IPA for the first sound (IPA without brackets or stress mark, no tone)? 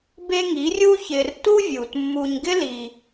b